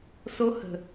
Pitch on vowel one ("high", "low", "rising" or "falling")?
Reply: high